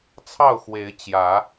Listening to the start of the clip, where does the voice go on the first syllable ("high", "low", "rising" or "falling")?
falling